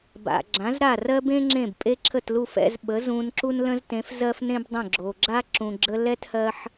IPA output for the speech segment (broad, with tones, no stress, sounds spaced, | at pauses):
b a̰˩ ɡ͡ǁ ã˩˥ z ɾ a˥˩ r ɜ˥ b ẽ˥ ŋ͡ǁ ẽ˥˩ b pʼ e˥ ǁʰ ə˥˩ t l u˥˩ f ɛ̰˧ z ɓ ə˩˥ z ũ˧ n ǁ u˥ n l ə̃˥ z t ẽ˩˥ f z ɜ˥ f n ẽ˥ b dˤ ə̃˥˩ ɡ͡ǁ o˩ ɡ͡ǁ a˥ ǁ ũ˩ ɡ͡ǁ ə˧ l ɛ˥ t h ɜ˧ ħ